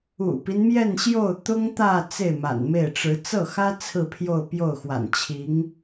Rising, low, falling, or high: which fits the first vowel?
low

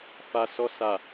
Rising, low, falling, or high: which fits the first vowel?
low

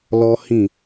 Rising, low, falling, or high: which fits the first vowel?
high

